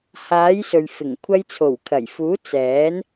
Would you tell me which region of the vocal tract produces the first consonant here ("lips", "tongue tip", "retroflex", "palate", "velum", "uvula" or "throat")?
throat